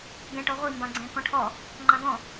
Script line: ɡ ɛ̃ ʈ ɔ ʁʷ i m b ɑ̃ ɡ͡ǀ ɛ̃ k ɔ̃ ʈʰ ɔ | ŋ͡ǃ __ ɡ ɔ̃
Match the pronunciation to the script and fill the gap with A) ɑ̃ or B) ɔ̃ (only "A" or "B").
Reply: A